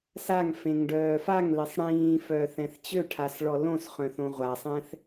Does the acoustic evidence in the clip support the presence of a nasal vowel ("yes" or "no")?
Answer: yes